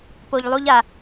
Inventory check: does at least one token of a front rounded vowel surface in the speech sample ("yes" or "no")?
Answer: no